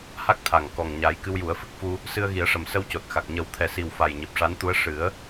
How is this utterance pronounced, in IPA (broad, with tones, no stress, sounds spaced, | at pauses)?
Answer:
h a˦˥ k̚ t̪ʰ a˨˩ ŋ k ɔ˨˩ ŋ ɲ a˨˩˦ j k ɨ˧ w j u˨˩˦ ə̯ f ɨ˦˥ k̚ f u˧ | s ɨ˧ ə̯ ɣ i˨˩˦ ə̯ ʂ ə˨˩ m s ə˧ w c o˨˩ t̚ x a˨˩ k̚ ɲ ə˨˩˦ w t̪ʰ ɛ˨˩ s i˨˩ w f a˨˩ j ɲ i˨˩ p̚ ʂ a˧˥ n t̪ u˧˥ ə̯ ʂ ɨ˨˩˦ ə̯